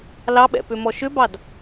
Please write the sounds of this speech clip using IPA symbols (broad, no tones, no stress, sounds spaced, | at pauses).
l ɑ ɓ ɛ̰ p ʏ m ɔ ʃ ʏ b ɑ d